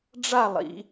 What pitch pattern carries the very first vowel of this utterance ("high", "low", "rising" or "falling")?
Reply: falling